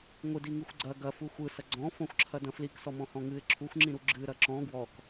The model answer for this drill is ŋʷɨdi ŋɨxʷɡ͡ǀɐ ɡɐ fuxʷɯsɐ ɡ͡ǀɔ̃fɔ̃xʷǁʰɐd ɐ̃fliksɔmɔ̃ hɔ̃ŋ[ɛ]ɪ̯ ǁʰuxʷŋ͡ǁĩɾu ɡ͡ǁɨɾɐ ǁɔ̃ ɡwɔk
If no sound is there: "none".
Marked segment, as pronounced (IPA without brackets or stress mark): ɨ